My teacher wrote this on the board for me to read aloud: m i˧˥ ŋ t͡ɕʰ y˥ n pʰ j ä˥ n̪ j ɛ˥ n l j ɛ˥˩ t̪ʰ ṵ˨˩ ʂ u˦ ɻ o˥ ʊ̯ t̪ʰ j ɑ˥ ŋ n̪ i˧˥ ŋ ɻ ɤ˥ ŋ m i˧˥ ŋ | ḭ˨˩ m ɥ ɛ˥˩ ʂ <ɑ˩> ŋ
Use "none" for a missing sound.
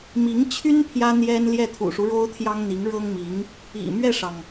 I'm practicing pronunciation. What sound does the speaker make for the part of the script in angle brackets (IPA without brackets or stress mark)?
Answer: ɑ˩